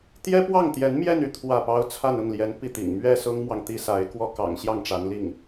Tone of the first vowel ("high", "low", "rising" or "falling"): high